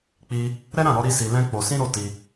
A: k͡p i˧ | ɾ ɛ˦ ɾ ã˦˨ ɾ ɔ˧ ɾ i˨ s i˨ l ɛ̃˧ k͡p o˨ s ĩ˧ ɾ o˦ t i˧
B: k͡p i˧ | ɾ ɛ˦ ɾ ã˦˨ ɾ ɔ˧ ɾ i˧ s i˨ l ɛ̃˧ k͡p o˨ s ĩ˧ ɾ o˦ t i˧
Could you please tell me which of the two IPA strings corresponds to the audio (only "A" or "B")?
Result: B